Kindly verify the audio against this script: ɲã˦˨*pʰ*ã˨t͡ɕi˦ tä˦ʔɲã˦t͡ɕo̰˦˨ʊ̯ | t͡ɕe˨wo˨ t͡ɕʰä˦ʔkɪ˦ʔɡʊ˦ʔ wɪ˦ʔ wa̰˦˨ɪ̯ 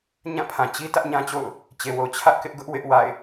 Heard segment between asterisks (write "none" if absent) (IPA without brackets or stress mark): pʰ